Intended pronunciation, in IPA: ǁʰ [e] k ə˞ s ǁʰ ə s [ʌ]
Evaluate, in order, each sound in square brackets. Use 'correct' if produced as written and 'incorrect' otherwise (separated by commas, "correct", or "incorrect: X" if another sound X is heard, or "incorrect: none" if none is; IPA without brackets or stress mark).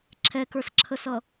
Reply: incorrect: ɛ, correct